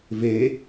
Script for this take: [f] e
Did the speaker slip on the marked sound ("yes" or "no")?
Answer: yes